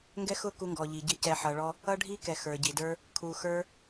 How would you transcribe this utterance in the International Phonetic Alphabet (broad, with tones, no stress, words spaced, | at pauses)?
ŋɡɛ˦xʊ˦ku˧ŋɡɔ˨ ʎi˨ɟɪ˧ cɛ˨ħʌ˨ɭɔ˧ | ʌ˧ ɖʱi˧kɛ˨ xə˞˨ ɟi˨də˞˦ | kʰu˧xə˞˦